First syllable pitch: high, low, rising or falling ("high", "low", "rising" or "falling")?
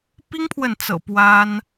high